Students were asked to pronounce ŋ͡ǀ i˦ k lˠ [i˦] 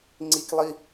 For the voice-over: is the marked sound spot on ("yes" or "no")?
yes